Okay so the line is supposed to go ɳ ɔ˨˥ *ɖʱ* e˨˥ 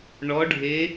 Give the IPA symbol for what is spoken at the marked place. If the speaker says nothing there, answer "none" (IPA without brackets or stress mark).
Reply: ɖʱ